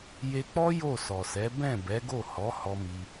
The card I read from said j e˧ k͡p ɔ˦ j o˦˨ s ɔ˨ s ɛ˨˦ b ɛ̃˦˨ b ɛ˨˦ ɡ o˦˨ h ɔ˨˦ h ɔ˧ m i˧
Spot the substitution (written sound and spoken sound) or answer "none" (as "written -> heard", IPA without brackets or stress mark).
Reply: none